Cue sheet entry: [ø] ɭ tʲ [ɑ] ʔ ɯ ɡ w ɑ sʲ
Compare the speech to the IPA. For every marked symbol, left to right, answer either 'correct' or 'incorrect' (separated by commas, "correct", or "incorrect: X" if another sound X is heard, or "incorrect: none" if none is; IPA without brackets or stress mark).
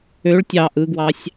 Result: correct, correct